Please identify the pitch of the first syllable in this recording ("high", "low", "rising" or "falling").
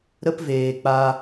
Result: high